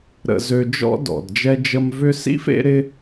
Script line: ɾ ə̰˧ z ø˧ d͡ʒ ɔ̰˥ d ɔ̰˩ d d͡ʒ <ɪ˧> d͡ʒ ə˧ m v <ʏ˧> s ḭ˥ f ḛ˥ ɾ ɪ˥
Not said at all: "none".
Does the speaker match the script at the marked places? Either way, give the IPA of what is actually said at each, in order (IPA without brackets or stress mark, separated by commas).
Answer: ɛ˧, ʏ˧